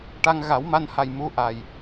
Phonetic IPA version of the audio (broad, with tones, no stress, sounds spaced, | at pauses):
ʈ a˧ ŋ ɣ a˨˩˦ w m a˧ n h a˨˩ j m u˧˥ ʔ a˨˩ j